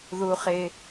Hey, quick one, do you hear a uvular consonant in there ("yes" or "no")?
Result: yes